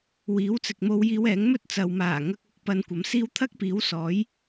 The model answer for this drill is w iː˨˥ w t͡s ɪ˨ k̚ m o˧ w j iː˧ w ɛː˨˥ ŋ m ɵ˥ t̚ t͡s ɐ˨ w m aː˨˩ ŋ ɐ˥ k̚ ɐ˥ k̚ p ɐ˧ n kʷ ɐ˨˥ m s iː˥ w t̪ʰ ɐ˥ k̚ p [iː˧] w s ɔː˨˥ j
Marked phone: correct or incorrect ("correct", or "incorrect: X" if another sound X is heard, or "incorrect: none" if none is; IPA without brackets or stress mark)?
incorrect: iː˨˥